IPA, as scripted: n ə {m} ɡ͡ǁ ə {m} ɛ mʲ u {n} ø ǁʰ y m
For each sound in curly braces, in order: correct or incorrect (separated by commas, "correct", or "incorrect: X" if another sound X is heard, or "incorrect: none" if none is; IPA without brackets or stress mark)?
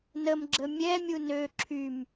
correct, incorrect: mʲ, correct